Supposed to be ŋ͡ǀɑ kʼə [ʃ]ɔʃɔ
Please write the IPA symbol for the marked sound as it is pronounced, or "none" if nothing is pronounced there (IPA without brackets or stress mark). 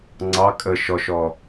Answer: ʃ